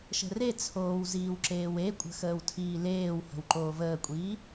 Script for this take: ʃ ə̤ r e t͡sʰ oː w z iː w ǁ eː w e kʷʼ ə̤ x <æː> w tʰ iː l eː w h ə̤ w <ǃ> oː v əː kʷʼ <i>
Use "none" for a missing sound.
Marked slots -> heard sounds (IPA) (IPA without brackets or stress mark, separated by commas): əː, ǃ, iː